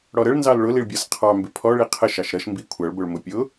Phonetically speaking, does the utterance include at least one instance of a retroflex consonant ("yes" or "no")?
yes